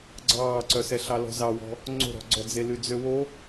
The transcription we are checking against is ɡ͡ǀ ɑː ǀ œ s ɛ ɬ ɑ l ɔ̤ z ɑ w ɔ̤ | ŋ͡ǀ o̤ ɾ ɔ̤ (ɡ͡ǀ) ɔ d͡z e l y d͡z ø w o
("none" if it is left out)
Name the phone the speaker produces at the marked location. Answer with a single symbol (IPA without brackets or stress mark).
ɡ͡ǀ